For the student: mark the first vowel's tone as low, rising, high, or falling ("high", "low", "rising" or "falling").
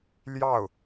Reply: falling